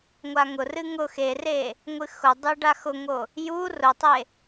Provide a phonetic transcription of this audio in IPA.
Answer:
ŋʷ a ŋ ʊ r ɨ ŋ ʊ x e r e | ŋʷ ɨ x ʊ dˤ e ɖ a x ʊ ŋ o | j u r ʊ tˤ e

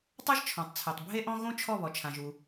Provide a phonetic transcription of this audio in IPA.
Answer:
tˤ ɤ˥ ʒ t͡ʃʰ ɔ̃˩ tˤ t͡sʰ ɛ˩ tˤ bʱ e˥ ʔ ɔ̃˥ ɣ õ˥ t͡ʃʰ ɔ˥˩ β ɔ˩ t͡ʃʰ ã˩ ʒ u˩

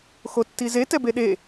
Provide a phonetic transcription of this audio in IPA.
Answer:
x o tː i z e t ɛ b e ɗ e

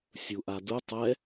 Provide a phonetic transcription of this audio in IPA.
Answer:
sʲ u ʔ a d u tˤ ɛ

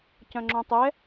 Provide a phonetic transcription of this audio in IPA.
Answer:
c œ̃ ŋ͡ǁ õ tˤ ɛ

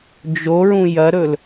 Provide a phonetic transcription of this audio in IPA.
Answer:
d͡ʒ o ɹ ũ j ɐ ɾ ɵ l

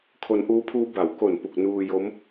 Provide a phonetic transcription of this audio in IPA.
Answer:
kʰ o˧ n ʔ uː˦˥ pʰ uː˦˥ b a˨˩ w k o˨˩ n p u˨˩ k̚ n uː˧ j o˦˥ m

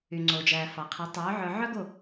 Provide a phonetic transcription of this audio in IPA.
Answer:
y˩ ŋ͡ǀ oː˩ d͡ʒ æː˩ f ɑ˩ qʰ e˩˥ tˤ œː˩˥ ʕ œ˧ ʕ œ˥ ɡ o˥˩

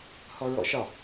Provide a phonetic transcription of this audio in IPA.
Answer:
h ɔ ɹ ɔ̰ ʃ ɒ

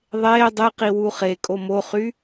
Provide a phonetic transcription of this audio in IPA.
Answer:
ðˤ eː dˤ e q i w u χ e kʼ o m o χ y

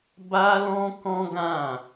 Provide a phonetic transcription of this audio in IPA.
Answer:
b a˦ l ɔ̃˦ k ɔ̃˦ ɡ ã˦˨

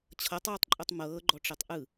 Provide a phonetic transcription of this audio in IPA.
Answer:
t͡ɕʰ ɤ tˤ j u tˤ ǃʼ u tˤ m ɤː ɡ͡ǃ ɔ ʈ͡ʂ i tˤ ʔ ɯ

